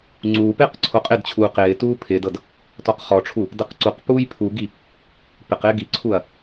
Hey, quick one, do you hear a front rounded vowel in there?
no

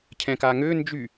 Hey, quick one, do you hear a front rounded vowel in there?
yes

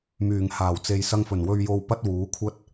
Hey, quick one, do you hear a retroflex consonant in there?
no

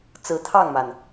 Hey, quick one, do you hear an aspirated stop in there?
yes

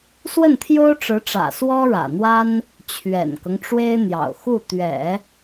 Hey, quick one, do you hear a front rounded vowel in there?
no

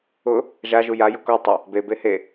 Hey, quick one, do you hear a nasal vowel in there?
no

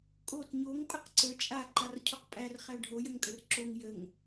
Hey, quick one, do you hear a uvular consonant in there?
yes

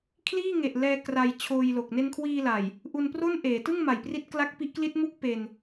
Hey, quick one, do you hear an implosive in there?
no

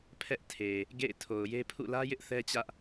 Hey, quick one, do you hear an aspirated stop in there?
yes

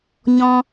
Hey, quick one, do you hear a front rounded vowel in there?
no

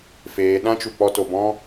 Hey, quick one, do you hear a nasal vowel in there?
yes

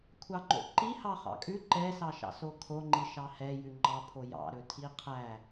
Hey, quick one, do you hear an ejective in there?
yes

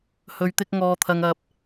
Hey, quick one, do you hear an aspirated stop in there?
yes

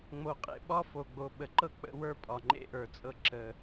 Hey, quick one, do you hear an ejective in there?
yes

